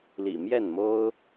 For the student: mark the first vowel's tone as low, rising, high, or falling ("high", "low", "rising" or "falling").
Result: low